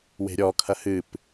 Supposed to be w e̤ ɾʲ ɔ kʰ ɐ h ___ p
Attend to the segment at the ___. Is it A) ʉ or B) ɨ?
B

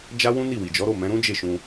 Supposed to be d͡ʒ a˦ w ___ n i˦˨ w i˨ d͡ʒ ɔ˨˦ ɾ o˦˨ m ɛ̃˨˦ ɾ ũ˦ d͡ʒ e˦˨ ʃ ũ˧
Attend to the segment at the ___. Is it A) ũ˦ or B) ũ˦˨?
A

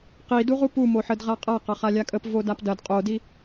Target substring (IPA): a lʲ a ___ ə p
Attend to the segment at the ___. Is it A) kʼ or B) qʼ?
A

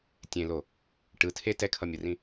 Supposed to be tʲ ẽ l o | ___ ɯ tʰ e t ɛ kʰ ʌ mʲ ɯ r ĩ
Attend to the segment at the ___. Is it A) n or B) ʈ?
B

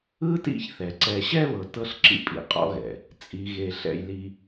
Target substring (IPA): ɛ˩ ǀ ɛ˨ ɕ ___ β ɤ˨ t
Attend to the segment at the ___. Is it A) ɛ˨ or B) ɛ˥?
B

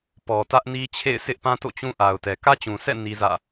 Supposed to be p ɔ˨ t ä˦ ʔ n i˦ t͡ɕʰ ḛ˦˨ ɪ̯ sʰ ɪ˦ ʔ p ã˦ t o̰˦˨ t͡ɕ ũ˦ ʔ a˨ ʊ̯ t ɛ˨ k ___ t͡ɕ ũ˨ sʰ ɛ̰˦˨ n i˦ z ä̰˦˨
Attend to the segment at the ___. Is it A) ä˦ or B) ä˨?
A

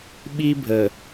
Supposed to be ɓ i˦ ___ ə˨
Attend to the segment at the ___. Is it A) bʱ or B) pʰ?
A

